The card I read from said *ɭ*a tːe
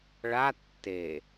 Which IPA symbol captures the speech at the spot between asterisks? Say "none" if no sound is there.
ɭ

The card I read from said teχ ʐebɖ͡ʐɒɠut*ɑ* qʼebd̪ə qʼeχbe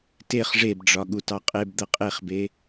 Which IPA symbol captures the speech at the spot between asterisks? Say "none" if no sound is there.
ɑ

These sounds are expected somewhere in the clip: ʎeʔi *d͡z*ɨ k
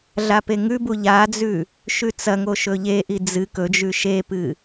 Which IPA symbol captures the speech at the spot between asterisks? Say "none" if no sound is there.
d͡z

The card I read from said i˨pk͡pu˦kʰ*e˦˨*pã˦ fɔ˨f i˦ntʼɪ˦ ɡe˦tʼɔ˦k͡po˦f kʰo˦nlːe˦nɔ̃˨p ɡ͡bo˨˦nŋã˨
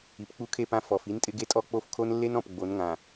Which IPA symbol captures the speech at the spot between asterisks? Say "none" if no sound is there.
e˦˨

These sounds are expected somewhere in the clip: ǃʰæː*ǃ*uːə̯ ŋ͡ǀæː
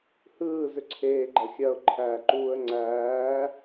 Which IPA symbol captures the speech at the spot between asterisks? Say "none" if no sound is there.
ǃ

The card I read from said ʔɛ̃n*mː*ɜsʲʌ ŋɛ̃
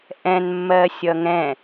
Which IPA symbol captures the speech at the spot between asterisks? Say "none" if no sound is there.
mː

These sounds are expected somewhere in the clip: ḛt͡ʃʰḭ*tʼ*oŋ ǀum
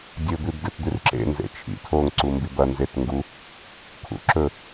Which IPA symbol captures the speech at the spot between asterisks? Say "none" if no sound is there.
tʰ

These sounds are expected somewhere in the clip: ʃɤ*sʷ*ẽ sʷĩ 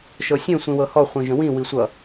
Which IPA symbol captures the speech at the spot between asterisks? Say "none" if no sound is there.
sʲ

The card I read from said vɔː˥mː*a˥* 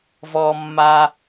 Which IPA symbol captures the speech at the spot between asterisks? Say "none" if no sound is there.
a˥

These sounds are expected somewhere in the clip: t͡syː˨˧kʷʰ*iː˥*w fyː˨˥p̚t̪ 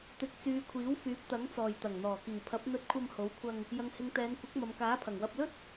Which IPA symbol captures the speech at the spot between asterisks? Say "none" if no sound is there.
iː˨˥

